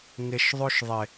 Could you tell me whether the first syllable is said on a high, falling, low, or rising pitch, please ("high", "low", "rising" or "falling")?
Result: low